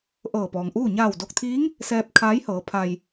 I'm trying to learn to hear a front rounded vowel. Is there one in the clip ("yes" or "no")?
no